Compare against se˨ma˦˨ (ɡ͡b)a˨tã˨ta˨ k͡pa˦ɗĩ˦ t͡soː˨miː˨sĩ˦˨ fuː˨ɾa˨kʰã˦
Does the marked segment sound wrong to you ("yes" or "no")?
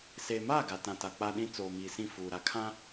yes